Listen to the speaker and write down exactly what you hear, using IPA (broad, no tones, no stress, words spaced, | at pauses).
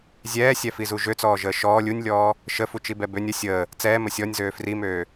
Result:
zʲɛːsʲɛfizu ʒøt͡sɔːʒəː ʃɔː lʲunʲlʲɔː | ʃəfut͡ʃibɛ bønʲ ə sʲəː | t͡sɛːmə sʲɔnʲzøː frimøː